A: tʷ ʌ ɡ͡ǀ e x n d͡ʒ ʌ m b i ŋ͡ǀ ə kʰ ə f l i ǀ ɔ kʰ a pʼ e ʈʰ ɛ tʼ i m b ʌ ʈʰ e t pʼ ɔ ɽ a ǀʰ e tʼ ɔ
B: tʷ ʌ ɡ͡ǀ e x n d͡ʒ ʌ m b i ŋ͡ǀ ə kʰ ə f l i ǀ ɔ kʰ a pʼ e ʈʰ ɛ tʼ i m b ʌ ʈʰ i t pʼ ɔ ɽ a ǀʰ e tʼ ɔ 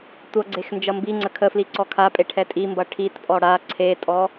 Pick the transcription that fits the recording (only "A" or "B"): B